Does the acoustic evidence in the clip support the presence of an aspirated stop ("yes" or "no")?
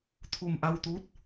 yes